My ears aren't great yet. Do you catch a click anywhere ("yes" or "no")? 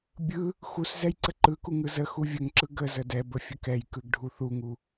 yes